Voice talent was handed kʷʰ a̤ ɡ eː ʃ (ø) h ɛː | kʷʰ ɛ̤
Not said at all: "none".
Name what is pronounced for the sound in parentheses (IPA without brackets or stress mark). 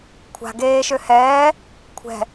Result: ø